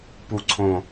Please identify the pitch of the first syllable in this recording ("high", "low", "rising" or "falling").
low